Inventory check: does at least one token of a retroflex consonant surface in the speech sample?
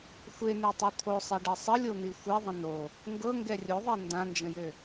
yes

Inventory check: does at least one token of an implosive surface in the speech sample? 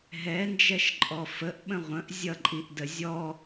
yes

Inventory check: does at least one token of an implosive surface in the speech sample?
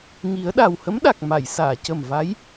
yes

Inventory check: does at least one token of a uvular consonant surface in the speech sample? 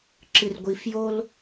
no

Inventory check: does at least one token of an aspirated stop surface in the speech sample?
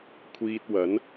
yes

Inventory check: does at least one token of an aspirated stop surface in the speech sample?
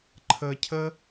yes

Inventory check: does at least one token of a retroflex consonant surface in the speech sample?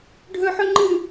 yes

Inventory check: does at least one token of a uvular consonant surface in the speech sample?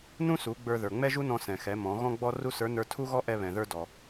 no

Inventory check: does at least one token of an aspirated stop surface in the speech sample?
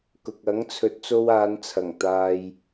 yes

